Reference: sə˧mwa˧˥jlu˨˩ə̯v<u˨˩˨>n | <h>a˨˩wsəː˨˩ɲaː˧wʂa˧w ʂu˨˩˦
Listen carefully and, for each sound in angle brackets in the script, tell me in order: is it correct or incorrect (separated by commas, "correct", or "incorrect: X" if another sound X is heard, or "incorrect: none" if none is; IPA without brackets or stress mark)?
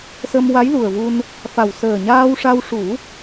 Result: incorrect: u˧, incorrect: f